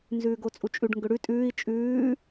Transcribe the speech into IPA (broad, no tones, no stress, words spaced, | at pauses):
nzʉːɡot͡sʼut͡ʃʼʉɖ ŋɡʏɽʉ tʼʉːi̯ t͡ʃʼʉː